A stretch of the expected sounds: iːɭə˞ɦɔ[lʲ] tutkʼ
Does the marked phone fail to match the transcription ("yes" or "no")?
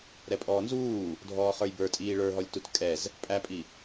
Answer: no